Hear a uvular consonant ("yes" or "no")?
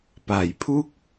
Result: no